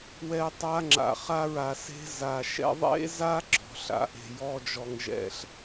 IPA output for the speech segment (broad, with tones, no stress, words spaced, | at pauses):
wɛ˦tˤa˦ ŋ͡ǁa̰˨χa˦ɹa˨se̤˦ za˨ʃɛ̰˦ ðˤḛ˦za˦ ɡ͡ǁɔ̤˨ɬa̰˨ʔe̤˨ jɔ˦d͡ʒɔ˨ŋʒɛ̰˦ɬ